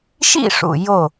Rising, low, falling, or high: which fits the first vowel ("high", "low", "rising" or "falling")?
falling